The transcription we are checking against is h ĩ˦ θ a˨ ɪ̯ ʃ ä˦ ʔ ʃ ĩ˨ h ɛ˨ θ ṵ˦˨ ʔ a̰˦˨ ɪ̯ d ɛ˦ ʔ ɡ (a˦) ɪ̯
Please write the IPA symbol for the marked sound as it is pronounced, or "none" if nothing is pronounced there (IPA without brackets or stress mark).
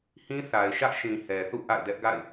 a̰˦˨